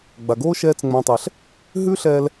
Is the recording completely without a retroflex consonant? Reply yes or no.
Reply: yes